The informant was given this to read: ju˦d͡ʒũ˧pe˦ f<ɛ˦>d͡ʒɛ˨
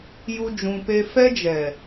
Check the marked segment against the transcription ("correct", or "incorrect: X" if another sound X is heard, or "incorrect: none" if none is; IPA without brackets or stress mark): correct